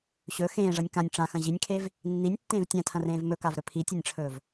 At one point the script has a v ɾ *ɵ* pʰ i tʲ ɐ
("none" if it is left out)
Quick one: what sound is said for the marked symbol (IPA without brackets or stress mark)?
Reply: ɵ